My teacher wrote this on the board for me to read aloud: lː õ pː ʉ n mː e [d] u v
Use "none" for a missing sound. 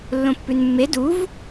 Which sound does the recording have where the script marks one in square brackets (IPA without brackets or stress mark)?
d